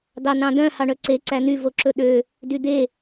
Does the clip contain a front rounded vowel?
yes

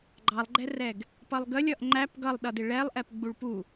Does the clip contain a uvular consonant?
no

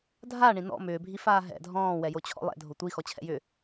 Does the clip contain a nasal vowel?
yes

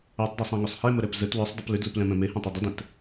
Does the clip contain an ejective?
no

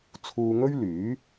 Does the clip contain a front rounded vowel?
yes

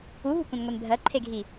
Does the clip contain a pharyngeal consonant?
no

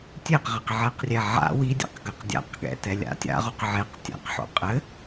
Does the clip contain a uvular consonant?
yes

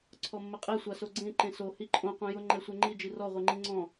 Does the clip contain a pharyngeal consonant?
no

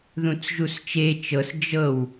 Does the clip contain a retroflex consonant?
no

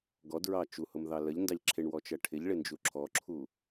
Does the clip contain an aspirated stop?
yes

